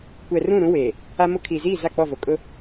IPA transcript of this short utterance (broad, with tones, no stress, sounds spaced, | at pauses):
kʷ ɛ˨ r ũ˦˨ ɾ ũ˦ w eː˨ | a˦ m ʊ˦ kʰ iː˨ z iː˦˨ z a˦˨ k͡p ɔ˦˨ v o˨ kʼ ʊ˦